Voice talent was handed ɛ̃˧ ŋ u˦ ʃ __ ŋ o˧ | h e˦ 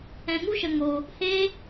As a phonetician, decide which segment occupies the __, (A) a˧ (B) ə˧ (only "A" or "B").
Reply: B